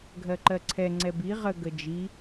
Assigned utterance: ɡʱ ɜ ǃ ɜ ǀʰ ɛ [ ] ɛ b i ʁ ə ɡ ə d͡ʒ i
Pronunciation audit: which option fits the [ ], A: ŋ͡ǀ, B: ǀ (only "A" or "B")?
A